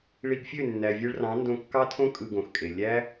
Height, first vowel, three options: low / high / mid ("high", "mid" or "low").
high